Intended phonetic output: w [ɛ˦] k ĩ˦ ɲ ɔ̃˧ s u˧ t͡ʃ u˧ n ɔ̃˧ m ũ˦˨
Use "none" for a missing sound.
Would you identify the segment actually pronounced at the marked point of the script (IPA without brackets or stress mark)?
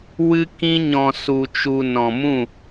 ɨ˦